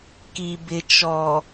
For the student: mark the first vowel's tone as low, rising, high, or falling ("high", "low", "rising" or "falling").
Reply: low